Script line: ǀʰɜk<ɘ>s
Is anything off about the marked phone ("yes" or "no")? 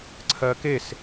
yes